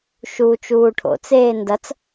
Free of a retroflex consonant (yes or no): no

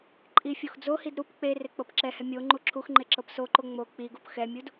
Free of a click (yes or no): no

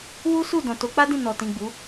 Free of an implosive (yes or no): yes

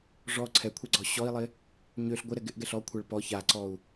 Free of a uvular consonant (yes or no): yes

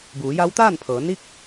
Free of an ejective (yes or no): yes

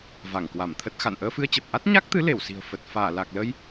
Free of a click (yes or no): yes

